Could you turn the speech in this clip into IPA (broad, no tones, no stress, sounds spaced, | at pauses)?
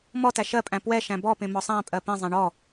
m ɔ t æ ʃ ɜ pʼ æ̃ p w ɛ ʃ æ̃ b ɔ p ẽ m ɔ sˤ æ̃ pʼ ɜ p ẽ zˤ æ̃ ɳ ɔ